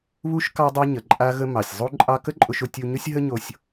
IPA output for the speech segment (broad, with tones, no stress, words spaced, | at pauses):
βu˥ʃ kɑ˥dˤa˥ ɲə˩ǃʼa˥ɣə˥mɑ˩sʲ zˤu˥ǃʼɑ˥ kə˥ǃʼʊ˧ʃ ʊ˧tʲu˧ɲʊ˥sʲ ɦə˥ɲo˧sʲ